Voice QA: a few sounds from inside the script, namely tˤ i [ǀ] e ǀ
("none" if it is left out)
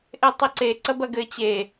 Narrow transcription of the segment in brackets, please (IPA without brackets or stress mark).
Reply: ǀ